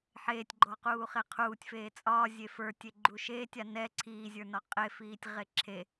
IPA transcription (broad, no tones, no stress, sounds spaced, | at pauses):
ħ eː tʲ ɡ͡ǃ ɔ q uː χ e qʰ uː tʲ f eː t͡sʼ ɒː zʲ e f ə˞ tʲ e ɡ͡ǃ u ʃ eː tʲ a n ɛ ǀʰ iː zʲ ə˞ n ɒ qʼ e f iː tʲ ʁ e ǁʰ e